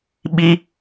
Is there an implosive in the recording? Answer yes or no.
yes